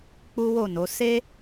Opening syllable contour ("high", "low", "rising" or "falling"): high